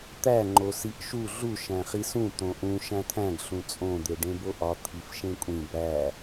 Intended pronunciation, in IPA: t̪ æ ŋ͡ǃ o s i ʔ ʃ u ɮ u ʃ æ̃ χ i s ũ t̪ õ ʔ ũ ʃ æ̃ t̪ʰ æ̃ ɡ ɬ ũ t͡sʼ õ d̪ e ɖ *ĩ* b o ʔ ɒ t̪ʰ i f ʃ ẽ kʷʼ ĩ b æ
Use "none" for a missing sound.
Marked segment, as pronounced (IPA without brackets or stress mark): ẽ